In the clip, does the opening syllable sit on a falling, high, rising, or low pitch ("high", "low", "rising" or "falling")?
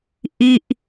falling